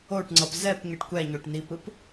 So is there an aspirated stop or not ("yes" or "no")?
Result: no